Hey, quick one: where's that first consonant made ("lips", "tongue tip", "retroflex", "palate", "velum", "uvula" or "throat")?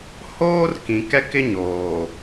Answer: throat